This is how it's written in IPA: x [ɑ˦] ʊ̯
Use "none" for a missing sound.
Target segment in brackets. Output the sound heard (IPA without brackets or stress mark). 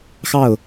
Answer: ɑ˥˩